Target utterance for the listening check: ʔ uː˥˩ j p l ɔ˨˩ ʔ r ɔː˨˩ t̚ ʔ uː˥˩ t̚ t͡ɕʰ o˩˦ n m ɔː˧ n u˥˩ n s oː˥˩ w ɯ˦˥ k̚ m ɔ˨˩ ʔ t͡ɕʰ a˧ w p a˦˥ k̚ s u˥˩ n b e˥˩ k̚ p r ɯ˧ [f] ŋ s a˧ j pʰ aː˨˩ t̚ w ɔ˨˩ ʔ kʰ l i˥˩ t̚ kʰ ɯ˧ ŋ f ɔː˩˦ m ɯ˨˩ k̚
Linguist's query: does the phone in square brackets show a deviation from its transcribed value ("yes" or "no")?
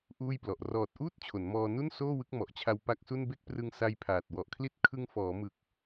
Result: yes